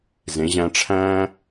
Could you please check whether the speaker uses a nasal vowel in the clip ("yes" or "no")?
yes